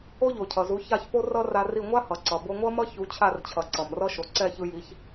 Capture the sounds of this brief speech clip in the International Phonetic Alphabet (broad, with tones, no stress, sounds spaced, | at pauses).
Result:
o˥ ʎ o˩ cʰ ʌ˩ z u˩˥ ç a˥˩ ç p o˥ r ʌ˥ r a˧ r i˥˩ ŋʷ a˥ h ʌ˩ ǀ ʌ˩ b o˧ ŋʷ ʌ˥ m ʌ˥ ç u˩˥ t͡ɕʰ a˥˩ r t͡ɕʰ ʌ˩ ǀ ʌ˩ m r ʌ˥ ʃ o˩ ǀ ɛ˥˩ ç ɯ˧ j i˩˥ ç